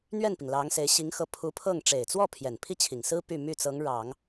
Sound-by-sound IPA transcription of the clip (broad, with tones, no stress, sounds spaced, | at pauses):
n̪ ɥ ɛ˥˩ n p i˩ ŋ l ɑ˧˥ ŋ s e˧˥ ɪ̯ ɕ i˧˥ ŋ x ɤ˧˥ pʰ u˧˥ pʰ ɤ˥˩ ŋ ʈ͡ʂ e˨˩ ɪ̯ t͡s w ɔ˥˩ pʰ j ɛ˨˩ n pʰ i˥˩ t͡ɕʰ i˨˩ ŋ s ɹ̩˥ p y˥˧ m y˥˩ t͡s ɤ˧˥ ŋ ɻ ɑ˨˩˦ ŋ